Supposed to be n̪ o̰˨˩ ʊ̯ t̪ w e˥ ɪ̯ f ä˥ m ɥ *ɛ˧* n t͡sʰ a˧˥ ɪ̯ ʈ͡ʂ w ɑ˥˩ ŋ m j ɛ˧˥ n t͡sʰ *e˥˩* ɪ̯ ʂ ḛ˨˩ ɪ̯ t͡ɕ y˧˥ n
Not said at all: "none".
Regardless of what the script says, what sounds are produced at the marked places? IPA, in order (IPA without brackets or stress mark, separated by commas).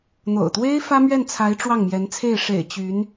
ɛ˥˩, e˥˩